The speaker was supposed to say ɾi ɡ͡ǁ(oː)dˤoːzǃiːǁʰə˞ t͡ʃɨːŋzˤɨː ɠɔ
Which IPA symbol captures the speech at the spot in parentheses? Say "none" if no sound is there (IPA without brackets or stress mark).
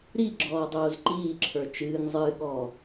ɔː